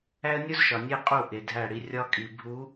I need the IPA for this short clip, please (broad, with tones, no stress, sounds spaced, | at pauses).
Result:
æ˦ ə̯ nʲ u˦ z ʃ ɒ˨ nʲ e˦ qʼ u˦˨ ʔ e˨ dʱ æ˦˨ ɽ i˦ rʲ ɒ˦ kʼ i˨ bʱ u˨˦